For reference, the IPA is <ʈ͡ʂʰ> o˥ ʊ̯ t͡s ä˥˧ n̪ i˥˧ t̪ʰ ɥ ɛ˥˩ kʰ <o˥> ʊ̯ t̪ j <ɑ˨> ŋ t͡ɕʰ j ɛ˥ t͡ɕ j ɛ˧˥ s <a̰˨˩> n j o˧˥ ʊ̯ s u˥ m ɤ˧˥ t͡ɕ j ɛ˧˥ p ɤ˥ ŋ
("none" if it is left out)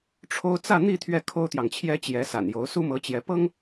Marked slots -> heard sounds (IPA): ʈ͡ʂʰ, o˥, ɑ˨, a̰˨˩

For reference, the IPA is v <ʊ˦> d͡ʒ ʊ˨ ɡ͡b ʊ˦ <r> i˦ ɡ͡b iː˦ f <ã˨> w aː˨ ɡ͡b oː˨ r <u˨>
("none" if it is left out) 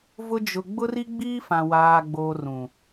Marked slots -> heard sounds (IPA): ʊ˦, r, ã˨, ũ˨

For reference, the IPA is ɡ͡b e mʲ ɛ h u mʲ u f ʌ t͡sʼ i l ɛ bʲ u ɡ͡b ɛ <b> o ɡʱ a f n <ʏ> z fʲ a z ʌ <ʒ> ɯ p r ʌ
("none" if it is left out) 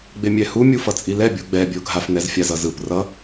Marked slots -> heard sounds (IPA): bʲ, ɛ, z

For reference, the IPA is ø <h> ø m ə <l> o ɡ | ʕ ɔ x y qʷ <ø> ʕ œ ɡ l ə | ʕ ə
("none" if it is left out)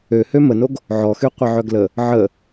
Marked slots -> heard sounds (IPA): h, n, ə

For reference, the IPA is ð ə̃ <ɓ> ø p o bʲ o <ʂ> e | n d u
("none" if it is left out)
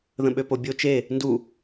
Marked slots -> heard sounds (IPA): ɓ, t͡ʃ

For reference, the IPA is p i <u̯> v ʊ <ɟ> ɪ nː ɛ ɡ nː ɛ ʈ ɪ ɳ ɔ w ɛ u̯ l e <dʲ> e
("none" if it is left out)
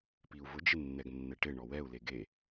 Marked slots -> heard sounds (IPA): u̯, d͡ʒ, ɡ

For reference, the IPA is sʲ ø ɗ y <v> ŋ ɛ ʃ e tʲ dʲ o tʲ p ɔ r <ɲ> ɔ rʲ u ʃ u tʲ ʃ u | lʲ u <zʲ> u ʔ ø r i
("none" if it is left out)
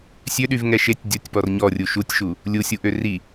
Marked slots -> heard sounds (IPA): v, ɲ, sʲ

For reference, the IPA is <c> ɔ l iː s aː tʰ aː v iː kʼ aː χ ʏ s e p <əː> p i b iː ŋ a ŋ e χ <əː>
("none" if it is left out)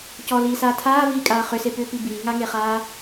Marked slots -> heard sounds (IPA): c, ʏː, aː

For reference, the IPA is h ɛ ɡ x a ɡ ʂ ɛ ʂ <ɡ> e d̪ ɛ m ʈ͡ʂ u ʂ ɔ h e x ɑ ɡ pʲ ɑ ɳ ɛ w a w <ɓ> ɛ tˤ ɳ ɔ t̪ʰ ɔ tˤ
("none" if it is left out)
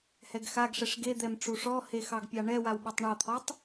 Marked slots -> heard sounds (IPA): ɡ, ɓ

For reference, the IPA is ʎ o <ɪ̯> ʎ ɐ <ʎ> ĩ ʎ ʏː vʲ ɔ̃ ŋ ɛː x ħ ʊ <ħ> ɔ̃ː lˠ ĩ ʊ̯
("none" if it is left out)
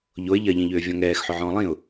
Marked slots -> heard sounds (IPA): ɪ̯, ʎ, ʕ

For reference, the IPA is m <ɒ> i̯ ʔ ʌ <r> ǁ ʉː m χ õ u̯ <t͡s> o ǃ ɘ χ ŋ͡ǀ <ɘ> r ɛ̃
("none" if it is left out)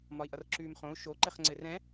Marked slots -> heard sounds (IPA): ɒ, r, ʃ, ɘ

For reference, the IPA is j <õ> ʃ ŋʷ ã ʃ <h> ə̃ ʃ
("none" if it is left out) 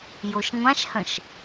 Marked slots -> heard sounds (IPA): o, h

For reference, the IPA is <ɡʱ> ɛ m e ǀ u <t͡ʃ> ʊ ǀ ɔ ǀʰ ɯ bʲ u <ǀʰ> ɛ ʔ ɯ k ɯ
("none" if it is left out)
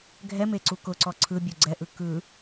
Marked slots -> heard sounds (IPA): ɡʱ, k, ɡ͡ǀ

